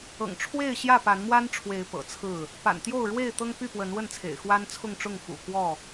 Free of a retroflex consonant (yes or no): no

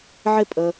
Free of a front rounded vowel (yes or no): yes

